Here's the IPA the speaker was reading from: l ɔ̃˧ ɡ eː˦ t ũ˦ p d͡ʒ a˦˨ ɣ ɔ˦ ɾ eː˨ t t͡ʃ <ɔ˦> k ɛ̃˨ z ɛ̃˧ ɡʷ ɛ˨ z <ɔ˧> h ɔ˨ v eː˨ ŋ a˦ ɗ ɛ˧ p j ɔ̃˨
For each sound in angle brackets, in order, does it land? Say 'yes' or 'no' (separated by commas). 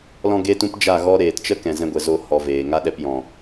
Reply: no, no